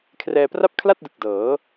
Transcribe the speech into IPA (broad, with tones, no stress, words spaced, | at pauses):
kʰrɛː˧pra˥˩p̚ kʰla˥˩t̚dɯ˨˩k̚ dɤː˩˦